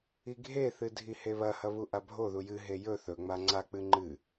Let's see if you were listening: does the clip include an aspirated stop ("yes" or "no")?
no